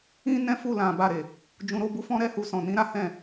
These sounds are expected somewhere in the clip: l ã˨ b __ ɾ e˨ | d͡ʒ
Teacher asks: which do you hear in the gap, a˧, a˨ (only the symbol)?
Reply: a˨